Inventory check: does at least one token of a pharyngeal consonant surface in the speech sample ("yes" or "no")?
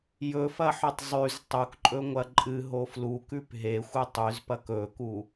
yes